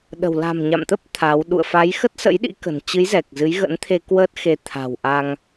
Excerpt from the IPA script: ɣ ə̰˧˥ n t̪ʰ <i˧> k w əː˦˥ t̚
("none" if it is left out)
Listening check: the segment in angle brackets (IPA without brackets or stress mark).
e˧